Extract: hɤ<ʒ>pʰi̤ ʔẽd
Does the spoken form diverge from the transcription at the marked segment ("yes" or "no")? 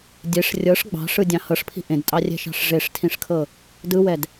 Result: yes